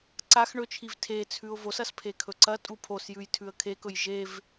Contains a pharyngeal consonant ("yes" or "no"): no